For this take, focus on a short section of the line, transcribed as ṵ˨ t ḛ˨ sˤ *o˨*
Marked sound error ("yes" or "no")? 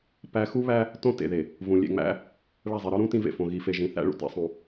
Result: yes